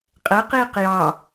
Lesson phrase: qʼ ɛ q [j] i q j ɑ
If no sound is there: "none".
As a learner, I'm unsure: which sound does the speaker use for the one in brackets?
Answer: j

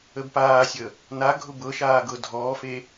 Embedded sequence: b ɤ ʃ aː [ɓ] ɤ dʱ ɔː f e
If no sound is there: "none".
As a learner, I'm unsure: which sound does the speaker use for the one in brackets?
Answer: ɡ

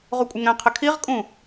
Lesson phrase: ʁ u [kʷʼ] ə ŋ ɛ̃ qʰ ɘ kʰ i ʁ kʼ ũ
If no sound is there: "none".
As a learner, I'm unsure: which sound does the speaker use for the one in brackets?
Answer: kʷʼ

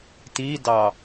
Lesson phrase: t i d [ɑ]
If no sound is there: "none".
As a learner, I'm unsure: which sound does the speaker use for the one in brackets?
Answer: ɑ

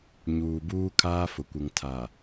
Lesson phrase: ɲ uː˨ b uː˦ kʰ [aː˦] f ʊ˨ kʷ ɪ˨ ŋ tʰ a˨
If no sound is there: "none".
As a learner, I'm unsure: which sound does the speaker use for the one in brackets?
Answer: aː˦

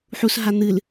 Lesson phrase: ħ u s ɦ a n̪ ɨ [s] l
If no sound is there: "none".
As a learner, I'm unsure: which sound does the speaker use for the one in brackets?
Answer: none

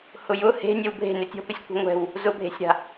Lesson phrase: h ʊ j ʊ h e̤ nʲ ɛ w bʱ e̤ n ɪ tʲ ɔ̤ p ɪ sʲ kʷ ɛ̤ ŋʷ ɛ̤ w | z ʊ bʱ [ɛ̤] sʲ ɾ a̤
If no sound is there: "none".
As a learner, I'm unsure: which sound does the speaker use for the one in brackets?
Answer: e̤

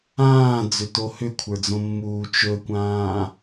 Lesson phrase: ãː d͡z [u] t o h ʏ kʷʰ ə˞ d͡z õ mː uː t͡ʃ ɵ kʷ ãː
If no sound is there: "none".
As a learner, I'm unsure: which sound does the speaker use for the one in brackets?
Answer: ʏ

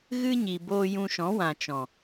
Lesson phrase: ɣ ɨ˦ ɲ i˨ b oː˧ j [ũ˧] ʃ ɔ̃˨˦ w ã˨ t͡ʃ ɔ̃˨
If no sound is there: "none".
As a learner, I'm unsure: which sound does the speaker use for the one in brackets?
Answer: ũ˧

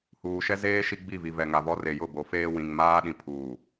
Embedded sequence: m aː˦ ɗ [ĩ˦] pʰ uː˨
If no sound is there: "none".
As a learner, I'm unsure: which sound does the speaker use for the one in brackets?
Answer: ĩ˨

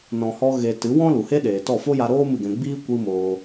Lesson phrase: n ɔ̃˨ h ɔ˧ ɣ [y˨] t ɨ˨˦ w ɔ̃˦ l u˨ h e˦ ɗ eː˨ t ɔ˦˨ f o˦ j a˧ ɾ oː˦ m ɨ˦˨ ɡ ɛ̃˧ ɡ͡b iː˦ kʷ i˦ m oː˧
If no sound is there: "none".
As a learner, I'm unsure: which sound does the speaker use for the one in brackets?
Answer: e˨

